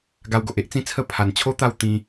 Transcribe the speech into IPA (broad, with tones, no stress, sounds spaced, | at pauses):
ɡ a˧ w ɡ o˨ ʔ e˦ ʔ t͡s ĩ˦ t͡sʰ ə˥˧ pʰ a˨˩ n t͡ɕʰ o˦ t̪ a˥˧ w t̪ ĩ˧